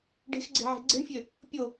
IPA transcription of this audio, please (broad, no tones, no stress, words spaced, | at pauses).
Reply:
ɖe̤xɡ͡ǀe̤ʕe̤ ɡ͡ǀe̤ɳfʲø | pʲo